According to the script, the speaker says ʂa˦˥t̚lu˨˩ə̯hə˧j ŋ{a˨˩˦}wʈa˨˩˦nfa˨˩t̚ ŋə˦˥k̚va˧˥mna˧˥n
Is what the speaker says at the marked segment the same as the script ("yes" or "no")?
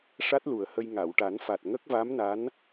no